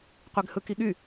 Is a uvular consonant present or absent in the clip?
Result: present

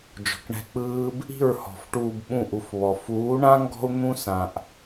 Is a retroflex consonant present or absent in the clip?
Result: present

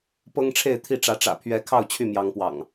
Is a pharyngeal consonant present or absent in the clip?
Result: absent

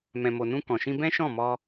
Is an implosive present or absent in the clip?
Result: absent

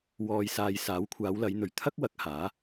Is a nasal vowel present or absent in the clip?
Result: absent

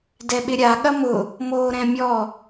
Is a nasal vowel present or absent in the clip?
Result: present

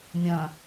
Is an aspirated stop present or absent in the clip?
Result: absent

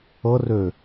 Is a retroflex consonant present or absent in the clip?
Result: absent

